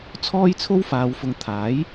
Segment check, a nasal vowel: absent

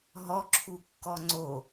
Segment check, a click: present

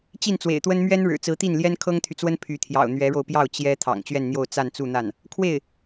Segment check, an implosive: absent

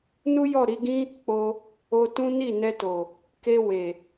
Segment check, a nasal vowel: present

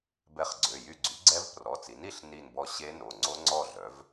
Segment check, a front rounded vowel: present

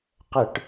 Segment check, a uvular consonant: present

